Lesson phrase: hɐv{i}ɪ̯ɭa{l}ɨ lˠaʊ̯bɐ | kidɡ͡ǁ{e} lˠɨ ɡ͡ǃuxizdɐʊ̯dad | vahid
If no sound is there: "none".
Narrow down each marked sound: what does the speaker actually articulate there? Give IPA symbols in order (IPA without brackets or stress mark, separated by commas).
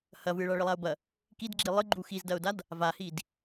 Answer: ɨ, ɭ, i